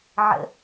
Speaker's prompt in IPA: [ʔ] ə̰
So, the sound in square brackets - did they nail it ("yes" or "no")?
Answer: no